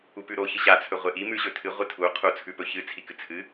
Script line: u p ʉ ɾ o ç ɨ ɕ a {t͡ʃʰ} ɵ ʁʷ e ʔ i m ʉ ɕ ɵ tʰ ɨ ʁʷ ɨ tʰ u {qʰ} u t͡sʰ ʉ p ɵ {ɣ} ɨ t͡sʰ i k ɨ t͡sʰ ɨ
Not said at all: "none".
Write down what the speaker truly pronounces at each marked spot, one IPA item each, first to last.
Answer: t͡sʰ, qʰ, ç

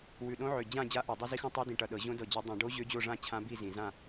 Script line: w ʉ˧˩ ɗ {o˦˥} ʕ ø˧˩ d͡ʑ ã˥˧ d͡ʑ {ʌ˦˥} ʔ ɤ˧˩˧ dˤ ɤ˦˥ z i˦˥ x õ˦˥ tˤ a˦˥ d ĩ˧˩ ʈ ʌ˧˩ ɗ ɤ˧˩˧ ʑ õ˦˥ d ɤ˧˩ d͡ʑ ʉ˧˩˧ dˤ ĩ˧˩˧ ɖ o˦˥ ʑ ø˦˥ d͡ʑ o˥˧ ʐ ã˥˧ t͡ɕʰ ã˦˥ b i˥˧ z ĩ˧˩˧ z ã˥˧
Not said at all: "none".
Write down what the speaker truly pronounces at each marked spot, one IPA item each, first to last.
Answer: õ˦˥, a˦˥

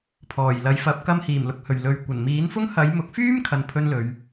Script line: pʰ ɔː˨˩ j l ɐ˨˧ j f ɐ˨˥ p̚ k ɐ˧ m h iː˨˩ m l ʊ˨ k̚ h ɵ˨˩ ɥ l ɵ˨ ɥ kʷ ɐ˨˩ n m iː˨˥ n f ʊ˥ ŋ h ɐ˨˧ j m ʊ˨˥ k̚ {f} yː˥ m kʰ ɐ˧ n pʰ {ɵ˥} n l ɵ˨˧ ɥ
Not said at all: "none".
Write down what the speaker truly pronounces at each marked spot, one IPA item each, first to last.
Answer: f, ɵ˥

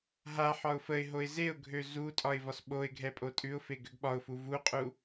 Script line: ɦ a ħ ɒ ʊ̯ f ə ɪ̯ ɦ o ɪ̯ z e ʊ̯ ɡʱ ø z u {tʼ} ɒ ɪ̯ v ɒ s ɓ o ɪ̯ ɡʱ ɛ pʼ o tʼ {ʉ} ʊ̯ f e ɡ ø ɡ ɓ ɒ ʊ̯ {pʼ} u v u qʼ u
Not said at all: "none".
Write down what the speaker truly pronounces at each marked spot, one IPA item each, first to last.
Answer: tʼ, ʉ, f

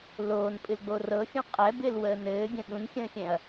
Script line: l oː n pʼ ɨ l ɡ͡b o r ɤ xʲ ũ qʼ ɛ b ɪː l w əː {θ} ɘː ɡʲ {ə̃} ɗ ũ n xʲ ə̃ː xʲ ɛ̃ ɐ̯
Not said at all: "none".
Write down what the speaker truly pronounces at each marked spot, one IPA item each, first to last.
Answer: n, ə̃

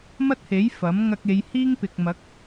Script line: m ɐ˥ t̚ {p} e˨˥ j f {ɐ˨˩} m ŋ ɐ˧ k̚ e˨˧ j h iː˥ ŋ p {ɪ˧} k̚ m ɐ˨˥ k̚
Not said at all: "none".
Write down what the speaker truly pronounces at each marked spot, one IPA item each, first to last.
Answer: h, ɐ˨˥, ɪ˨

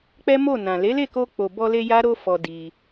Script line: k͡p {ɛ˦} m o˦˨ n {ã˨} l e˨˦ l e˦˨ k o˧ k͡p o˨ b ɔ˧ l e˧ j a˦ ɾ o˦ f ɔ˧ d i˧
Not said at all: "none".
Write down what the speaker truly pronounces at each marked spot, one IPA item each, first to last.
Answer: ɛ˦, ã˨

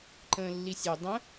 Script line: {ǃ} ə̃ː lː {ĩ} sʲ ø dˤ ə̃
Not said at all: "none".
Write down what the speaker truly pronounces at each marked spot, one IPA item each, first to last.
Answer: ǃ, i

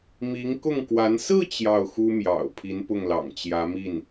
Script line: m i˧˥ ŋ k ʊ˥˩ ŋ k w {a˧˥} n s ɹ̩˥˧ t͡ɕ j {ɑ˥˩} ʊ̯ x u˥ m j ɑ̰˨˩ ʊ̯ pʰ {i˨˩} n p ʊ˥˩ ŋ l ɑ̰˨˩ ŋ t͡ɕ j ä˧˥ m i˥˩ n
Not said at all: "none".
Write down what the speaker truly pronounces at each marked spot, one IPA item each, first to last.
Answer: a˧˥, ɑ˥˩, i˧˥

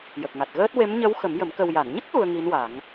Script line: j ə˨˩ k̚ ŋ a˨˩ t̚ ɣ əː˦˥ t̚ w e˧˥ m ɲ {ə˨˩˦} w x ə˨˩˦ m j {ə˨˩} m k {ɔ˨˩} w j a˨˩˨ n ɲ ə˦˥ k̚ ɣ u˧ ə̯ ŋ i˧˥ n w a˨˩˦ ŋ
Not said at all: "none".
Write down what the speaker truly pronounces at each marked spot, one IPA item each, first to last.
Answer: ə˧˥, ə˨˩˦, ə˨˩

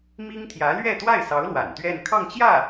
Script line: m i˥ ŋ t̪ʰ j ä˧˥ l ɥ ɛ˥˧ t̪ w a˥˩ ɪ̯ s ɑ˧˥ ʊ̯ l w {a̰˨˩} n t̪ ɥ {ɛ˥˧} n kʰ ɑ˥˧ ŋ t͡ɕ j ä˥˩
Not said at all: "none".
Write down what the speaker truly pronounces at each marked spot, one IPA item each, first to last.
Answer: a̰˨˩, ɛ˥˧

